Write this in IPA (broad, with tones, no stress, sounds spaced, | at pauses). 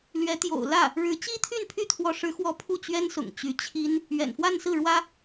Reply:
l ɥ ɛ˧˥ t̪ j o̰˨˩ ʊ̯ l ä˥˩ | ɻ ɻ̩˧˥ t͡ɕ i˥ t̪ʰ y˥˧ n pʰ y˥˩ t̪ʰ w ɔ˧˥ ʂ ɻ̩˧˥ x w ɔ˧˥ pʰ u˥˩ t͡ɕ ɥ ɛ˥ n s ʊ̰˨˩ ŋ t͡ɕ y˧˥ t͡ɕʰ i˥ n | ɥ ɛ̰˨˩ n f w a˥˧ n s ɹ̩˥˩ ɻ w ä˥